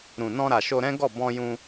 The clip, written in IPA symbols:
ɾũ˨nɔ̃˧ ɾa˨ʃo˧ɾɛ̃˦ɡɔ˦˨ bɔ̃˧jũ˧

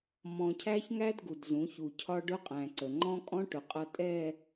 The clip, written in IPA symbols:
mɔ̃˨cʰæ˦çŋæ˦d ɡu˨dzũ˨˦çu˨ cʰɒ˦ɖʊ˦qʼæ̃˨ǀə˨ ŋ͡ǃɔ̃˦kʼɔ̃˦ʈʊ˨ qʼʌ˦tʼɛ˦˨

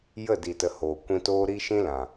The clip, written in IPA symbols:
jə˦˨di˨tə˨ hoː˨ kʷĩ˧toː˦ ɾi˦ ʃĩ˦lã˨

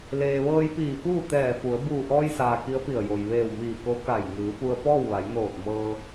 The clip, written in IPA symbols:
leː˩ʋɤː˧jpiː˧˩ fuː˥˨t̪ɛː˧˩fu˩˧ə̯ buː˧˩ʔɔː˧jsaː˩ ki˧˥ə̯pi˧˩ə̯jo˩j ʋeː˧˩wmiː˧˩ ko˧˥ ka˧˩j ŋɯː˩˧pu˧ə̯pɔː˥˨wʋa˩˧j noː˧˩t̚ mɤː˧

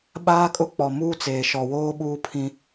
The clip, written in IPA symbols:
ɓaː˦kʼʊ˦ k͡pɔ˨muː˦t͡seː˨ ʃɔ˨woː˦ɓuː˦pʰĩ˦

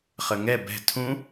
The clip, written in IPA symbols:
χəŋɛ bɛ̤ tʰũ

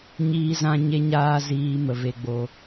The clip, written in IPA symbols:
ɲiː˦zã˦ ɲe˦ɲaː˦ ziː˧mə˨ ve˧ɡ͡bo˧

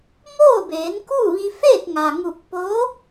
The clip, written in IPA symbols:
moː˥˨beː˩˧nku˥˨ʋi˧ feː˥˨t̚ŋa˩ŋu˧˩k̚ po˧˥

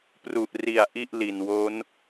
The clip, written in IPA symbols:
pru˨˩ʔri˨˩a̯ ʔi˥˩ʔli˨˩nwo˦˥n

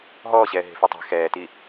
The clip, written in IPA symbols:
ɦɔːɕɛː ɦe̤fitˤe̤ xɛːti

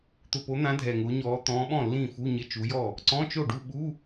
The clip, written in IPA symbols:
t̪ʊ˨˩po˨˦n̪ã˨˦ dʱɛ˨˩ŋʊː˨˦ɲɔː˨˦ t̪ɔ̃ː˨˦ɓɔ̃˥˩ lːĩː˥˩fu˧˥˧ ɲɪ˧˥˧t͡ʃu˨˦jɔ˥˩ | ǀɔ̃˧˥˧ t͡ʃo˥˩ɖu˥˧ ɓu˧˥˧

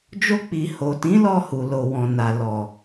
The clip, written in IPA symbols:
d͡ʒo˧k͡pi˨ ho˨tĩ˨˦lɔ˧ hu˨lo˨wɔ̃˨na˨ lɔ˨

